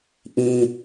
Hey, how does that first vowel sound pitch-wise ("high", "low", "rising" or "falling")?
low